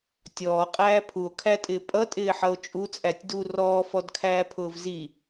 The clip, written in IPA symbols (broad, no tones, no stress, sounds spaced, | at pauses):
tʲ ɔː qʼ æː pʰ u o̯ kʰ æ tʼ ɪː pʼ ʌ tʼ ɪː ħ ʌ o̯ t͡ʃʼ u t͡sʼ æ tʲ d u r ɔː f ɔ d kʰ æː pʰ ʊː v z i